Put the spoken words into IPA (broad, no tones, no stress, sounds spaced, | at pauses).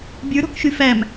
bʲ ə˞ ɾ ɔ̤ k ʃ y f æ m